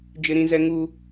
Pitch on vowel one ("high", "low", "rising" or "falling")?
high